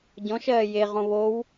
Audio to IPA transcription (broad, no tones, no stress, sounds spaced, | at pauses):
ɟ ɔ̃ ʃ ɜː j e ʁ õ β o w